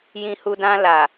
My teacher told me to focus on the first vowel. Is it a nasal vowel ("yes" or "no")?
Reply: yes